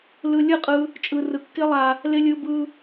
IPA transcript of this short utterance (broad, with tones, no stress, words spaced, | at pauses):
lɯ˧lʲɯ˦˨qʼɯ˧ | t͡ʃʼɯ˧rɯ˧kːɪ˦lˠa˧ | lɪ˦lʲɯ˦bɯ˦